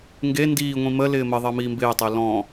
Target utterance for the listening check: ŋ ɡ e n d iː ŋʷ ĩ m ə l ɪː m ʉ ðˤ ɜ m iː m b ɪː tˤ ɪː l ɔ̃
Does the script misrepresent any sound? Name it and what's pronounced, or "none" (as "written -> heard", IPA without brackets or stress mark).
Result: ʉ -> ə